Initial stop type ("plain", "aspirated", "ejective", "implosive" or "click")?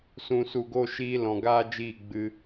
plain